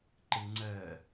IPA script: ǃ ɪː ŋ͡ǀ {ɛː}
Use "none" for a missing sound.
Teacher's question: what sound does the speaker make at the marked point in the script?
ɜː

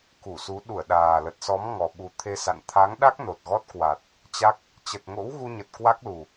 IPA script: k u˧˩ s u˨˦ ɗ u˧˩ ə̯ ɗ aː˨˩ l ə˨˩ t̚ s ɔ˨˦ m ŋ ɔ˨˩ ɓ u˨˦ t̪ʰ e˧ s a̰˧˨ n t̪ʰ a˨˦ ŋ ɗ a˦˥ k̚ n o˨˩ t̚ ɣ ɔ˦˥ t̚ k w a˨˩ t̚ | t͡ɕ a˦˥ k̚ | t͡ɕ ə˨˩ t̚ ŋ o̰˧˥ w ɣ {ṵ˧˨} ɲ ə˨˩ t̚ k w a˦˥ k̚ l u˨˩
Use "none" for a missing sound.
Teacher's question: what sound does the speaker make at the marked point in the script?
u˧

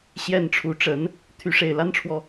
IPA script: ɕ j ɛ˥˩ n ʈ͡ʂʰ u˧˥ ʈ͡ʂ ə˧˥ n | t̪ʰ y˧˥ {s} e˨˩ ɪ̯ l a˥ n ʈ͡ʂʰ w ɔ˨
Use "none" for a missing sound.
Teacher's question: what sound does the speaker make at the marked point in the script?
ʂ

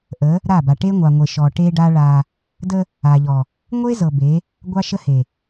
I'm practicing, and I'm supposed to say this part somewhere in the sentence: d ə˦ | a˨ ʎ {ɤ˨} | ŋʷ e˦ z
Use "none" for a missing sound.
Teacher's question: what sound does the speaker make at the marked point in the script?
ɔ˨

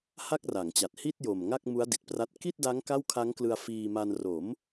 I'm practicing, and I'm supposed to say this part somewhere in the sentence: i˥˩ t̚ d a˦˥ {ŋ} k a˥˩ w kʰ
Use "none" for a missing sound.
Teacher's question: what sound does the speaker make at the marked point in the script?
ŋ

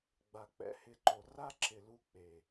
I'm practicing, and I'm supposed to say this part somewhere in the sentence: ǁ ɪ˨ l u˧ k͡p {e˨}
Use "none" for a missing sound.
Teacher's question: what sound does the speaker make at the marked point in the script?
e˨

